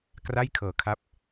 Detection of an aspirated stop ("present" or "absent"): present